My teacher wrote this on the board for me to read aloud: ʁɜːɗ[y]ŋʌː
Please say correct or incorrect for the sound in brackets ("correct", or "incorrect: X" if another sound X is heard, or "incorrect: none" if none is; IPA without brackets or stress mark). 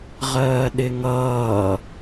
incorrect: ɪ